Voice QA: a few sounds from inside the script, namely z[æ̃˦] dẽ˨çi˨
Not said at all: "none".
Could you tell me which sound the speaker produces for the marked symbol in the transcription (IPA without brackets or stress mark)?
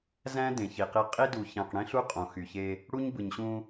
æ̃˦